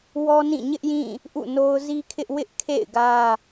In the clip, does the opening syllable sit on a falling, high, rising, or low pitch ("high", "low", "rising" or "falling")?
high